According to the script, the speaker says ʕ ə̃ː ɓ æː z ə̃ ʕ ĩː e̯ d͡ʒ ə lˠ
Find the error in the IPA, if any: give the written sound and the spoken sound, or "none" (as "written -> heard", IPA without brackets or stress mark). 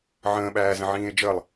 none